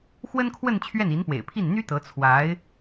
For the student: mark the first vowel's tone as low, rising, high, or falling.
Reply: high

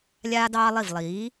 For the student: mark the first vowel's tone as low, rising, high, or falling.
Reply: high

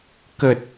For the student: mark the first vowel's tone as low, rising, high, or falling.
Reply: low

